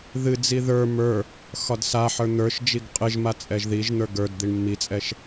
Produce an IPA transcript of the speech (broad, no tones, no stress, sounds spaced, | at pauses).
ð ɨ d͡z i ð ə˞ m ə˞ | x ɒ d s a ħ ə˞ n̪ ə˞ ʃ d͡ʒ i ɡ qʼ ɨ ʒ m a t͡sʼ ɛ ʒ ð i ʒ n̪ ə˞ ɡ ə˞ d d̪ i ɳ mː i t͡sʼ ɛ ʃ